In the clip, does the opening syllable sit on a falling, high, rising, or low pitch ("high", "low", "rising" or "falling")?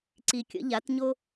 low